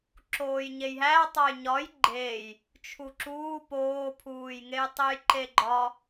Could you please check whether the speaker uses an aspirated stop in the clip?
yes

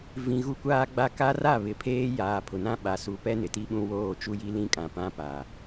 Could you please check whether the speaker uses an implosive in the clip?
yes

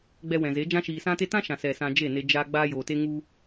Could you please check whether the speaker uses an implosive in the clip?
no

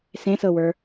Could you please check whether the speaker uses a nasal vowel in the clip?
yes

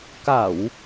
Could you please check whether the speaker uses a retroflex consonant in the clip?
no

